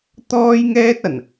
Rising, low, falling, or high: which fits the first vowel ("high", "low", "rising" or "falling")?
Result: high